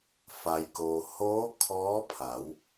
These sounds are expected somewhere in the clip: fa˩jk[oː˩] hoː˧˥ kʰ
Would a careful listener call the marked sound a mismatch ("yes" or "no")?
no